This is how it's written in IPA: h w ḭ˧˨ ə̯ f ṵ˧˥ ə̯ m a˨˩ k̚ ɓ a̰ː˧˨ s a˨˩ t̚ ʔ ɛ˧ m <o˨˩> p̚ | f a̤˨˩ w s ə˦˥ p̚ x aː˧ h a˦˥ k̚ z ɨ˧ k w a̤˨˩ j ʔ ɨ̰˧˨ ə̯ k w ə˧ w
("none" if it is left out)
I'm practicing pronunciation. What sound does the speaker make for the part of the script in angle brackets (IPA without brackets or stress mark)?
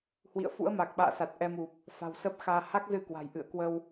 u˨˩